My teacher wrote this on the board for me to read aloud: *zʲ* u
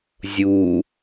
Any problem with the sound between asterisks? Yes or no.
no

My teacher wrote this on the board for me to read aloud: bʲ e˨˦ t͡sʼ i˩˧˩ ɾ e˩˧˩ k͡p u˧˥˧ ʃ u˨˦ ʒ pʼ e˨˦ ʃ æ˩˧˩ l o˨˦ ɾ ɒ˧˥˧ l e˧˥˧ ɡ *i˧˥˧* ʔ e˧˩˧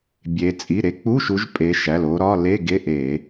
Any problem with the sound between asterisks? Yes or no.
yes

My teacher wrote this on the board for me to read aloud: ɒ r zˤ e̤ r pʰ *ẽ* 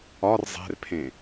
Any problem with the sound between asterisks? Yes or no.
no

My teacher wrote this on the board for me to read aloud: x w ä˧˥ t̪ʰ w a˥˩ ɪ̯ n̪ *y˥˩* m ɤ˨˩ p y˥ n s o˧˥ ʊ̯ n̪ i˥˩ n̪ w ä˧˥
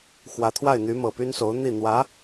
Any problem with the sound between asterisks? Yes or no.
yes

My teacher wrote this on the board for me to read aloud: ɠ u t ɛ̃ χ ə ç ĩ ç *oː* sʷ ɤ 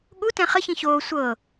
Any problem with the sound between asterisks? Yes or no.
no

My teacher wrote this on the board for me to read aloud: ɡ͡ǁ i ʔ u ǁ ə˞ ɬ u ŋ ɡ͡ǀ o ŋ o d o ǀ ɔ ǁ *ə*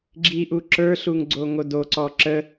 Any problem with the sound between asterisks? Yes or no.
no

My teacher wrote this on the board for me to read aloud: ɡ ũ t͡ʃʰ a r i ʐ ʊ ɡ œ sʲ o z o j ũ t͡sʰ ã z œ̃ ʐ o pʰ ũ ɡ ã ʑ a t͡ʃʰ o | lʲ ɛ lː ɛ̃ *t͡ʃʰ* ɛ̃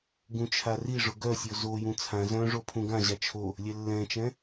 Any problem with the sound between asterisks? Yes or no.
yes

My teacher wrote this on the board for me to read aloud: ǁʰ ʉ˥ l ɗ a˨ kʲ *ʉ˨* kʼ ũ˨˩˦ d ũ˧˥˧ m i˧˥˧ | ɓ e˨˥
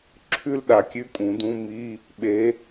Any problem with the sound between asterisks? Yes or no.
yes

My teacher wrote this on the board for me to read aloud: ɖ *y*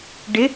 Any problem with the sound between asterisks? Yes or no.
yes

